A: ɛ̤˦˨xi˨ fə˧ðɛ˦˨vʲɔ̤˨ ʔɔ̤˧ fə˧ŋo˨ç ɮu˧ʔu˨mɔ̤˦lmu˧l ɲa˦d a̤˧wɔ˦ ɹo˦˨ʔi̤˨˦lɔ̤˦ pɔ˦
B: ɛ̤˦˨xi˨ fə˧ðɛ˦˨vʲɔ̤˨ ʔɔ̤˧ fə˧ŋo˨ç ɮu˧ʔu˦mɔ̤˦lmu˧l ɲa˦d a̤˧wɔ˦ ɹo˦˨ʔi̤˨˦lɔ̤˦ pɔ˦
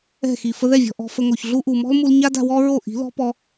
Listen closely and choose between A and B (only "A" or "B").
A